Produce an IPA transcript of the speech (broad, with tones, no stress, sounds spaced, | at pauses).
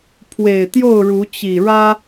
pʰ w e˨˩ ɪ̯ t̪ j o˥˨ ʊ̯ ɻ u˨˦ t͡ɕ i˨˩ ɻ ä˦